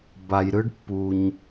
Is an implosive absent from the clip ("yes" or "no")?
yes